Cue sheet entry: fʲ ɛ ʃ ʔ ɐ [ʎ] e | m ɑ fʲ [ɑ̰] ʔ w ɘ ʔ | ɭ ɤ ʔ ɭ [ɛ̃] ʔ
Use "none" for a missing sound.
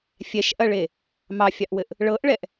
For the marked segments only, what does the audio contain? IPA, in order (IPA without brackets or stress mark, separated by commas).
ɭ, ɑ, ɛ